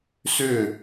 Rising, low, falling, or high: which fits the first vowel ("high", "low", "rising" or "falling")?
falling